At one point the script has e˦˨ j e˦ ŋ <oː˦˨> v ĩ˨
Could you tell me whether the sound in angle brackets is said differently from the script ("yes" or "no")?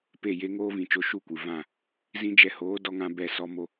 yes